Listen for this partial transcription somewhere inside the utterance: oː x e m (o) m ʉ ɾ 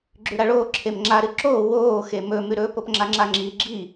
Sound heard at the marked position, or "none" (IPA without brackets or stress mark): ɵ